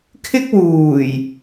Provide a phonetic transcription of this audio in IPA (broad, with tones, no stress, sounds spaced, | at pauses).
kʰ ɪ˥ k̚ w uː˨˩ j